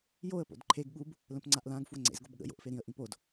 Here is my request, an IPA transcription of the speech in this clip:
j o ə̯ p o̰ d ǃʰ e ɡ ɠ u b | l ə̃ p ŋ͡ǀ a ʔ l ã ɡ f w ə ŋ͡ǀ ḛ z ɡ o b ɠ ə̰ j o̰ ʔ f e ɾ ĩ ə̯ ʔ ĩ p o d

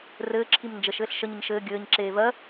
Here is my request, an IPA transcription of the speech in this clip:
r ɘː ǁʰ i m n d͡ʒ ə ʃ ɘː ɬ ʃ ə ɲ ə ɲ ʃ ɘː ɡʲ ɘː ɲ ǁ eː v ɜ

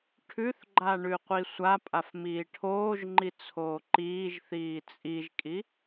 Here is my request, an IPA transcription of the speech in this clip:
ʈʰ ʉ θ ɡ͡ǃ a ɳ ʉ qʷ i sʷ a pʼ a f m iː ʈʰ oː ʒ ŋ͡ǃ i t͡sʰ oː ǃ iː ʒ θ iː t͡sʼ i ʒ kʼ i

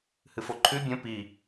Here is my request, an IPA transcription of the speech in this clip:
h ɨ f o ǃʰ ʉ bʲ ə̃ p i

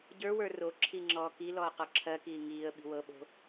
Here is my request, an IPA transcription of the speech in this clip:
ɟ ə˞ w ə˞ r o ǁʰ i ŋ͡ǁ ɔː k i l ɔː q ɔ ǁʰ ɜ k iː ŋ iː ə̯ ɓ i̤ w ɤ ɓ o̤

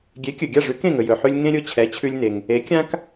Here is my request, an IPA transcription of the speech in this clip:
ɡʲ e˩˥ kʲ ɵ˩ ɡʲ a˥˩ ʐ ʉ˩˥ k ẽ˥˩ ŋ ɵ˩ j ɵ˩ ħ ʉ˧ lʲ ŋ ẽ˥ ɾʲ ʊ˧ t͡ɕʰ ɛ˩˥ t͡ɕʰ ʉ˧ lʲ n e˩ ŋ | e˩˥ kʲ ã˥ k

